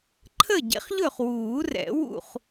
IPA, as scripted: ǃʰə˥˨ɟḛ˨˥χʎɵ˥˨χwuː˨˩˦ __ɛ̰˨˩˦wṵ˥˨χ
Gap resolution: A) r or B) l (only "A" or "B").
A